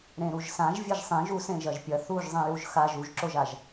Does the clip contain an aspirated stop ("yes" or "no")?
no